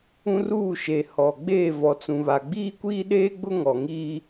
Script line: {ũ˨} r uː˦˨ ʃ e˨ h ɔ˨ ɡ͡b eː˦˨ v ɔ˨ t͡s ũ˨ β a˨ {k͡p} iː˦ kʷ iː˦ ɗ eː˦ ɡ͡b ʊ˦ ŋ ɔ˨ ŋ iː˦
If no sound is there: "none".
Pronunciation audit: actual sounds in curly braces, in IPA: ũ˦, ɡ͡b

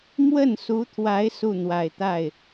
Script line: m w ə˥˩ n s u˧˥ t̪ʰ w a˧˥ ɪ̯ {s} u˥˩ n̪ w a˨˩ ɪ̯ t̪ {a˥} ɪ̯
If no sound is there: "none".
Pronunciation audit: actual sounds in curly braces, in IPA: s, a˥˩

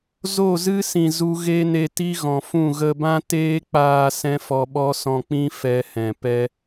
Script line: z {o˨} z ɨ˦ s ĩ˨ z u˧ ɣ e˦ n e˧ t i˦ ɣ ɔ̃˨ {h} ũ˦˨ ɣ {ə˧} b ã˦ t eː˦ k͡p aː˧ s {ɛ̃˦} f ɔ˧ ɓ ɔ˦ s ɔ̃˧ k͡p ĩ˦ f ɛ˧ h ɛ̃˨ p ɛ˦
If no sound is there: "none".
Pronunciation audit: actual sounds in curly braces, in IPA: o˦˨, f, ə˧, ɛ̃˦

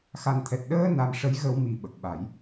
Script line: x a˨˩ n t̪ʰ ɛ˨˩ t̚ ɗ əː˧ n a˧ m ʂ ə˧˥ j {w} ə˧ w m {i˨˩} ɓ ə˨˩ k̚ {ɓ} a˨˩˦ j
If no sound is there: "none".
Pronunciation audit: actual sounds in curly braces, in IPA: ɣ, i˨˩, ɓ

